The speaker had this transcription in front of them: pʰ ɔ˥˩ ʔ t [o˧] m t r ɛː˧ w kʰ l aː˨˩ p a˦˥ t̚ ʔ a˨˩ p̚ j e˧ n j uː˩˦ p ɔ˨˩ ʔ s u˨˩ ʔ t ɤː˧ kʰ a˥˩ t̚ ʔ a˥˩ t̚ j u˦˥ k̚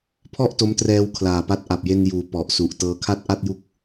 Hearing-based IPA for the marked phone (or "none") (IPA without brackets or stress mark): o˦˥